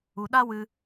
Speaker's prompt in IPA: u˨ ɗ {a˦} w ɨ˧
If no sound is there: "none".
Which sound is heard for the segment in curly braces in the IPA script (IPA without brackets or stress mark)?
a˦